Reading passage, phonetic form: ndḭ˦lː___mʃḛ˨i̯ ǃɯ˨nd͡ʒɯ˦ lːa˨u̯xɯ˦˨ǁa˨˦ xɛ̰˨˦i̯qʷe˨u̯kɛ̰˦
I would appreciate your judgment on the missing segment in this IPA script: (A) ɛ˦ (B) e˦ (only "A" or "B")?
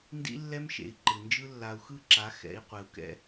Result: A